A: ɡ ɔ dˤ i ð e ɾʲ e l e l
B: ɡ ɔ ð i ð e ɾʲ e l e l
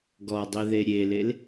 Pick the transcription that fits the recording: A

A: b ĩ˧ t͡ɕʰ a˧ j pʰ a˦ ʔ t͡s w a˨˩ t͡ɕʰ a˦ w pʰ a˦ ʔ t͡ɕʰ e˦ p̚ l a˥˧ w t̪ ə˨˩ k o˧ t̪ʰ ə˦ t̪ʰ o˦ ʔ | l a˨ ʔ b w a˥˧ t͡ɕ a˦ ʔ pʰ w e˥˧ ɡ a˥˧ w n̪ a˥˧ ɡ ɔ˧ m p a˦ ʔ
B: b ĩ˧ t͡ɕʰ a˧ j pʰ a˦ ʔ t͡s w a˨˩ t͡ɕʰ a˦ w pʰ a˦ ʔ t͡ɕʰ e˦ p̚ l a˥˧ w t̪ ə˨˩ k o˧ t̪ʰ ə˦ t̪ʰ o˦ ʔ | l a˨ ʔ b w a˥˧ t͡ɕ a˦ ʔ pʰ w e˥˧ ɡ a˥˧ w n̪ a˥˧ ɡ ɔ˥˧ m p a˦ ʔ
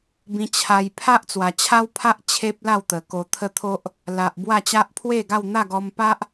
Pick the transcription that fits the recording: A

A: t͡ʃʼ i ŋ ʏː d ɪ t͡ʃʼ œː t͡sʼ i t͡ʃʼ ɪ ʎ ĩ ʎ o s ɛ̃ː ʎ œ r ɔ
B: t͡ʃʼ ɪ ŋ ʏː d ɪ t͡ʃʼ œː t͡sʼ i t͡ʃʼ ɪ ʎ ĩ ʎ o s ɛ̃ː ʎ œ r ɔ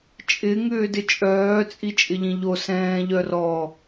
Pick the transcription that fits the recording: B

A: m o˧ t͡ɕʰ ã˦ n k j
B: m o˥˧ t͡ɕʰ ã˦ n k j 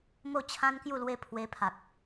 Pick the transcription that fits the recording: B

